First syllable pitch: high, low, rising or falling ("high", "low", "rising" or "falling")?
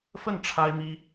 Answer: falling